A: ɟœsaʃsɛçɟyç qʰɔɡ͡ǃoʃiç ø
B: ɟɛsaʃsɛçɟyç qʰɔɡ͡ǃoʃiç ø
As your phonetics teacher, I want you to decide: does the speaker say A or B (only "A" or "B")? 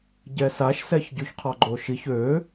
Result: B